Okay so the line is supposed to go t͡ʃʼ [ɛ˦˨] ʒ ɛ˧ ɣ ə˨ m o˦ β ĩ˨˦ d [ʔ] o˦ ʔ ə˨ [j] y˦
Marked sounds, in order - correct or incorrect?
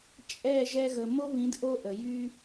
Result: correct, correct, correct

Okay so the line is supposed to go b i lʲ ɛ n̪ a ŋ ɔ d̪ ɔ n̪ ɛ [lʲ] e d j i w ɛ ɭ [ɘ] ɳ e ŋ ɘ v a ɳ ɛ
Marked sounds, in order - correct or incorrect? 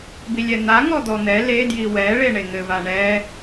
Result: incorrect, incorrect

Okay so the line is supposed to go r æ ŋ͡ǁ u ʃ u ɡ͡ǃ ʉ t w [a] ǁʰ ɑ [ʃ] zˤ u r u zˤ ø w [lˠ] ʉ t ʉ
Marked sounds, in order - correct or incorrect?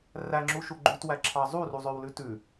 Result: incorrect, incorrect, incorrect

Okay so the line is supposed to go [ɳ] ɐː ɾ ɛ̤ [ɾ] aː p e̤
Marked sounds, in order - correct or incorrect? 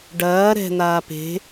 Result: incorrect, incorrect

